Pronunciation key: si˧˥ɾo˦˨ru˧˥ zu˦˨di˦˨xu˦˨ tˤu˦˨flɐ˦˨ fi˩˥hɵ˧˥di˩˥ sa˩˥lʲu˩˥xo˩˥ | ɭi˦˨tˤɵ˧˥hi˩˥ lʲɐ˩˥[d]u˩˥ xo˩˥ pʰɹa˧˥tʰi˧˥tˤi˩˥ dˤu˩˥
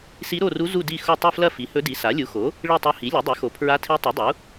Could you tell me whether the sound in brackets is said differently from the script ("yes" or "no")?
yes